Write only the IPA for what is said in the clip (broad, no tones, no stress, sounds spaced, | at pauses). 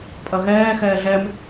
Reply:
pʼ ɐ ɣ ɛː x ɛː ɮ ɛ m